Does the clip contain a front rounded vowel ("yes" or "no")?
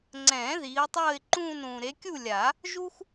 no